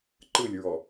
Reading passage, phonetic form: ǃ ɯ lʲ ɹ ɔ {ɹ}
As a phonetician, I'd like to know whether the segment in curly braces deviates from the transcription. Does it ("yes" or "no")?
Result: yes